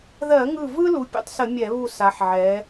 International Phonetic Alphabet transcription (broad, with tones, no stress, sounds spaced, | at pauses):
ð ɜ˧˩˧ ŋ ɯ˧˩ v ɯ˦ l u˨˥ pʲ o̰˨˥ tˤ s ə˧˩˧ mʲ ɛ˧˩˧ β u˧˩ s a˩˧ ħ ʕ ɛ˩˧